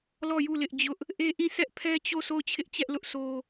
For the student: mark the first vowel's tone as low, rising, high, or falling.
falling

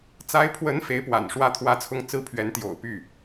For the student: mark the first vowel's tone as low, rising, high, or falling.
rising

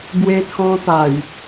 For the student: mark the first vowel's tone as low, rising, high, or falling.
high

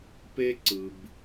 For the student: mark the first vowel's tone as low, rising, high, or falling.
high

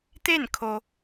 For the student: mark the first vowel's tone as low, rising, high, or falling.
falling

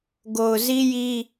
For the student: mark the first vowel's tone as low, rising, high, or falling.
low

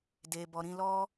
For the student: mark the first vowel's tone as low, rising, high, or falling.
low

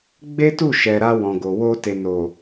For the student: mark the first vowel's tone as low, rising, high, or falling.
high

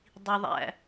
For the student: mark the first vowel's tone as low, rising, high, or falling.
low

